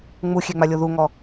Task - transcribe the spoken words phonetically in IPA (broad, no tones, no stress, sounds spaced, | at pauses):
ŋ͡m u xʲ e ŋ͡m a lʲ o ð u ŋ ɔ